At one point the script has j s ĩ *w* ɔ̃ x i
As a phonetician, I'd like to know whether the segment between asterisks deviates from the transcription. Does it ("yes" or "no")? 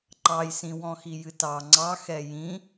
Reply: no